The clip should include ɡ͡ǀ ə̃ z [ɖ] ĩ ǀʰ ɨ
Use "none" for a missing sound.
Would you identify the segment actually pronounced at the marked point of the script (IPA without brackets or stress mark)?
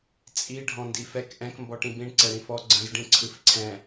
ɖ